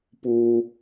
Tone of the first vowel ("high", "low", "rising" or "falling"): high